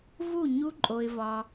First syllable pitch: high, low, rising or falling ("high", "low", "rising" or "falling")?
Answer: falling